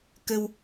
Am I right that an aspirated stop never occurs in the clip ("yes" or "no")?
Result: yes